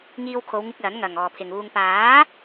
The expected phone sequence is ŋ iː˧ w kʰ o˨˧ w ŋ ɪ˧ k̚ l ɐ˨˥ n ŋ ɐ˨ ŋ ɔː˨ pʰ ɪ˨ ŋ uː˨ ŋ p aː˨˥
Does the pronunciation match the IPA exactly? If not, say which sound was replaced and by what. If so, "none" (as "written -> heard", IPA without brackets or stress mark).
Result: none